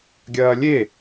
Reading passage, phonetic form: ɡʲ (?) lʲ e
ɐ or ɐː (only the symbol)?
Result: ɐː